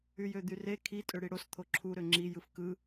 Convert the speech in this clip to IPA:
yjød̪yre kʰi tʼøɽiɽos t̪ʰoǁʰu ɾøŋ͡ǁi jɯfkɯ

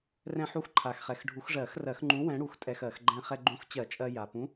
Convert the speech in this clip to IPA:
rɛ̃˧ħu˧x ǃʰa˨˩xχɛ˨˩x ɖʱu˨˩˦xʐɜ˨˩˦xrɜ˨˩˦xŋ͡ǃũ˨˥ wɛ̃˨˥ɽu˨˩˦x tʼɛ˧xɜ˨˩˦x ɡ͡ǃɛ̃˧ χɛ˧ɡ͡ǃũ˨˥x t͡ɕɜ˨˩˦t͡ʃʼɜ˧ ja˨˩ pũ˨˥

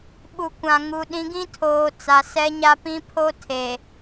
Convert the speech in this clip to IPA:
ɓu˨kʷã˨ ŋu˨ ɗĩ˨˦ɡĩ˦tʰoː˨ t͡sa˨sɛ˦ɲa˦ pĩ˦pʰo˦tʰe˨

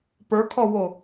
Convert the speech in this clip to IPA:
pə˞kʰɔwo

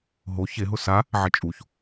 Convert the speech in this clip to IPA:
ɦo çeɦʊ sa | ʕɪt͡ʃʼuç

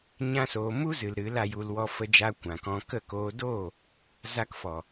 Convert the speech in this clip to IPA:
ɲã˦soː˧ mu˦zɨ˨l ɾɨ˨˦la˧ju˧l wɔ˧ fə˧d͡ʒa˧ kʷã˨kɔ̃˧ kə˦˨ koː˧doː˦˨ | za˦kfɔ˨

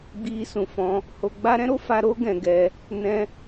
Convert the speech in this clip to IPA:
ɡ͡bi˧ sũ˨fɔ̃˧ | ho˧ɡ͡ba˦ ɾɛ̃˦ɾo˦fa˧ ɾo˦ɡɛ̃˧ɡɛ˧ | nɛ̃˦

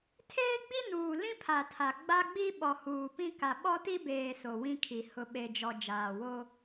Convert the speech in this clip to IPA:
tʰeː˦ɡ͡bi˦nuː˨ lĩ˦pʰa˨tʰa˨ ɡ͡ba˦ɡ͡bi˦ɓɔ˨ huː˨pĩ˦ ka˨ɓɔ˦ti˦beː˨ so˨wĩ˦kʰi˨ hʊ˨ ɓe˨d͡ʒɔ˨ d͡ʒaː˨wo˦

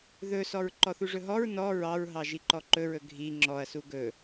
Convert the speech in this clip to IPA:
ðɵsɔɹ ǃɔθuʐɵɦɔɹ nɔ ɹɑɹɦɑ ʒiǃɔǃɵɹɵ ɡʱi ŋ͡ǁɔɐ̯su ɡɵ

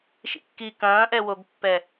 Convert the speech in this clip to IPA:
ʃḭkːi kɐ̃ːʔɛwoɡpːɛ

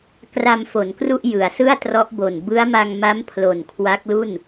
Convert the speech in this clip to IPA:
kra˧mfo˩˦nkru˥˩ʔ jɯ˩˦a̯sɯ˥˩a̯trɔ˦˥ʔbo˨˩n bɯ˦˥a̯ma˧ŋma˦˥m pʰlo˨˩nkʰwa˦˥k̚lu˥˩n

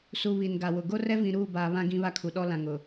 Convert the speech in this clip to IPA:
su˨ βi˨nɡa˨wʊ˨ ɡo˦rɛ˦vĩ˨ ɾuː˦˨baː˨βã˦ ɡĩ˦βa˦kʰu˨ ɗɔ˦lã˨ŋ ʊ˨

